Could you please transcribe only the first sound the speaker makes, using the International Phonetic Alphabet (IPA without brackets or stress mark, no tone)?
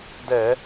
d